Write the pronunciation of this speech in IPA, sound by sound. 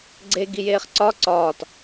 ɡ͡ǀ e ɡ i j eː χ ǀ ɒ ǀ ɒː t

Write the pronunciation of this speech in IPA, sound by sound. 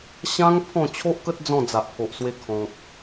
ɕ ã˧ ŋ pʰ ɔ̃˥˧ t͡ɕʰ o˦ ʔ k ə˦ t̚ d͡z ɔ̃˥˧ d͡z a˨ ʔ pʰ o˨ ʔ s w e˧ kʰ ɔ̃˨ k̚

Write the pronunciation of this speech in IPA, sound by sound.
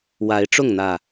w a˨˦ ɪ̯ ʈ͡ʂ ʊ˥˨ ŋ n̪ ä˨˩

